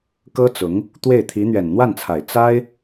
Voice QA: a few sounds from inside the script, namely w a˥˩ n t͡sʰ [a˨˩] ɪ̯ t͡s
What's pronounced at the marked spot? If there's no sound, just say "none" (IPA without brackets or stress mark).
a˨˩